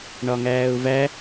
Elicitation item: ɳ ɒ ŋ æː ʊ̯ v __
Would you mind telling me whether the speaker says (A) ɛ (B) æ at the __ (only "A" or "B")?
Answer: B